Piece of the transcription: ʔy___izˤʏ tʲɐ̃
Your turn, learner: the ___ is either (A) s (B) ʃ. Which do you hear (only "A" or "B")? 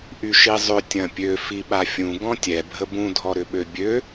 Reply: B